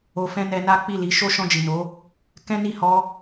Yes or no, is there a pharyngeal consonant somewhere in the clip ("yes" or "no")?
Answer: no